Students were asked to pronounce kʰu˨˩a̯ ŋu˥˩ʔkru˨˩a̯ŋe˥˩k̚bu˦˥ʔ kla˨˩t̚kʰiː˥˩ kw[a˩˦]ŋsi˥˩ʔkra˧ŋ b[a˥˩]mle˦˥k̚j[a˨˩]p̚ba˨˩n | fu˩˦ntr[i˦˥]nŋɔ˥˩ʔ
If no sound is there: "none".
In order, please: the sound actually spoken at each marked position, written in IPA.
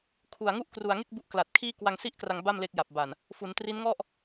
a˧, a˥˩, a˨˩, i˦˥

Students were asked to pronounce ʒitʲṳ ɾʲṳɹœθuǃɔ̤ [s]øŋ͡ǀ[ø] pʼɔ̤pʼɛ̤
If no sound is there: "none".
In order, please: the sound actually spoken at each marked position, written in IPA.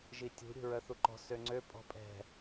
s, ø

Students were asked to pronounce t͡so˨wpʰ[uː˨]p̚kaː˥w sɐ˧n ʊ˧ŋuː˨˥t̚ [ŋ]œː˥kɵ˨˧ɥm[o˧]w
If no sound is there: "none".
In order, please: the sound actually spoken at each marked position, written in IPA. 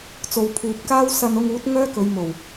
uː˨, ŋ, o˨˩

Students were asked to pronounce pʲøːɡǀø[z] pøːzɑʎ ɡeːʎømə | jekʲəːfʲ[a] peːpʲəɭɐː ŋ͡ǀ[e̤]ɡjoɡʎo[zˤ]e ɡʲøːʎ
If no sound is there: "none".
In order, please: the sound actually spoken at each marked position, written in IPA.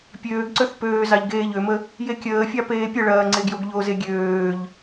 θ, ɑ, e, z

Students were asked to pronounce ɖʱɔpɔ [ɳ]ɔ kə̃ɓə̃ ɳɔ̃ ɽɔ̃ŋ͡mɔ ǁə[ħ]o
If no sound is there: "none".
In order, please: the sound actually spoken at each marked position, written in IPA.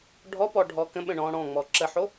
ɖʱ, ħ

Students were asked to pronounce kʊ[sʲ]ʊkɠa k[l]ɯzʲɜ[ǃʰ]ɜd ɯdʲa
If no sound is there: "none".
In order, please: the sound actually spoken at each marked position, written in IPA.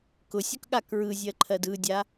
sʲ, ɹ, ǃʰ

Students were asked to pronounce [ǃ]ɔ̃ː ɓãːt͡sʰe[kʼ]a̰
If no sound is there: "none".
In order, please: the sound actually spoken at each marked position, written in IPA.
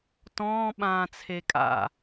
t, kʼ

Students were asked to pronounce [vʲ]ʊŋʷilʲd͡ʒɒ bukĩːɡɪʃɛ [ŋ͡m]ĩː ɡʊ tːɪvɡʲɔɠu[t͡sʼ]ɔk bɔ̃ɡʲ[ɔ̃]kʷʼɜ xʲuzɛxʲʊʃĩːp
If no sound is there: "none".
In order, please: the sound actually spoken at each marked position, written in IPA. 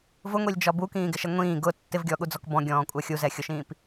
v, ŋʷ, d͡z, ɔ̃ː

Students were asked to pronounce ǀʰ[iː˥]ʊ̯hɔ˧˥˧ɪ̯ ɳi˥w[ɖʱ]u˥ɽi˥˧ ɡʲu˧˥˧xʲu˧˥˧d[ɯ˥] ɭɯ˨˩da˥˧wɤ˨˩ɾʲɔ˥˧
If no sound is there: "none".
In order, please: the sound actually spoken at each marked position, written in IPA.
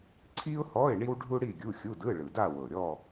i˥, ɖʱ, ɯ˧˥˧

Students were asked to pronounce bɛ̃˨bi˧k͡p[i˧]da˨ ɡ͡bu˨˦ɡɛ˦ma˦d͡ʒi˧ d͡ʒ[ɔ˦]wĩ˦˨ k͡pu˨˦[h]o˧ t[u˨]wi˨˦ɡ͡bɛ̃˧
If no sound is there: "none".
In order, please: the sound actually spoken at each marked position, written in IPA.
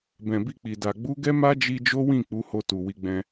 i˨, o˦, h, u˨

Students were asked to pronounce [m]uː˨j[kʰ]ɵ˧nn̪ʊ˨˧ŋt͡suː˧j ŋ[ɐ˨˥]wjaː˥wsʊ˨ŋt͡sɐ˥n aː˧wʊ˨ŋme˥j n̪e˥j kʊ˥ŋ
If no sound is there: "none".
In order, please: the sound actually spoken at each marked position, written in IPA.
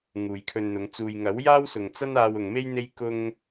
ŋ, kʰ, ɐ˨˥

